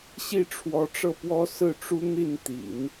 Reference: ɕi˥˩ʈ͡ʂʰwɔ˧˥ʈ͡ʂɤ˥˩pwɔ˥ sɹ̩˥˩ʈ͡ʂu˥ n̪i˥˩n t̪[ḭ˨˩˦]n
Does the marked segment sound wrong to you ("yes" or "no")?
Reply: no